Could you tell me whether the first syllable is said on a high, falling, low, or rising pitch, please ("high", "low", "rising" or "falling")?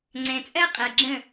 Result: low